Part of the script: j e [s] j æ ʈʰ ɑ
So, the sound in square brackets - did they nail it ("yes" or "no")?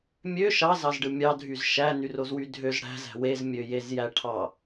no